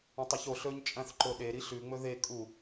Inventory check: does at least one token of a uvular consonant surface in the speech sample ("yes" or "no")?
no